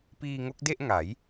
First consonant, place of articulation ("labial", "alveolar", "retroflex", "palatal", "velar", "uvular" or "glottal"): labial